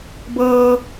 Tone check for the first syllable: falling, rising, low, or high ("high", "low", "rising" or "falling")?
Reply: high